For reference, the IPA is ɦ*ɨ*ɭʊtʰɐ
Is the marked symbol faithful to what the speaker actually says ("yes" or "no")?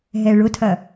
no